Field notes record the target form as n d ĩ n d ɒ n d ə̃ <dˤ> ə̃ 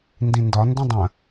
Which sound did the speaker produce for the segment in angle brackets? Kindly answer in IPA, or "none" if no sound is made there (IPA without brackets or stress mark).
dˤ